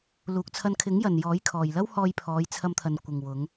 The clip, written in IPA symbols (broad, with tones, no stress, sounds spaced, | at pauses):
l uː˨ k̚ t͡sʰ ɐ˧ n kʰ ɪ˨˥ ŋ j ɐ˨ n j ɔː˨˥ j kʰ ɔː˨ j l ɐ˥ w h ɔː˧ j pʰ ɔː˨˧ j t͡sʰ ɐ˧ m t̪ʰ ɐ˨ n kʷ ɪ˨ ŋ w ʊ˨˧ ŋ